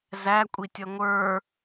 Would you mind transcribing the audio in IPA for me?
zækʷʼitʲʌ ŋʷə˞

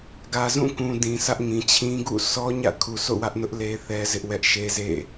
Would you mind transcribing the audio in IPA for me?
ɡä˨zũ˦˨kũ˨ dĩ˨sä˦ʔŋĩ˨ t͡ɕʰĩ˦ɡṵ˦˨ sʰɔ˦ ɲä̰˦˨ kʰu˨ so̰˦˨wä˦ʔnʊ˦ʔ le˦θɛ˦ zɪ˦ʔwɛ˦ʔ ʃe˦zḛ˦˨

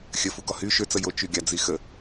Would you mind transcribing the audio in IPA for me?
xʲəfu ɡɔhy ʃøt͡sə jo t͡ʃyɡʲad͡zixə

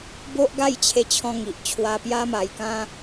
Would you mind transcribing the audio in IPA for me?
bo˦ʔ ɡa˥˧jt͡ɕʰe˧t͡ɕʰɔ̃˧ŋi˨ʔ t͡ɕʰwa˧pja˦ma˧jkã˦

